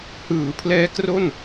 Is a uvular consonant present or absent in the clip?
absent